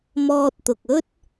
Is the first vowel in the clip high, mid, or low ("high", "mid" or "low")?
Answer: mid